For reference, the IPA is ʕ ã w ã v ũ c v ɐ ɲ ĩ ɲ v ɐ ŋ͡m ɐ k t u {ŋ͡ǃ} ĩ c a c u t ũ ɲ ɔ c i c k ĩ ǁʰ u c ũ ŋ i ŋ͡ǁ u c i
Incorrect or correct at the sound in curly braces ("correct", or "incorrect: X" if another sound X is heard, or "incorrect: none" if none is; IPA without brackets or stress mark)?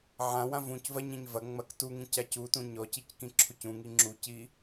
incorrect: ŋ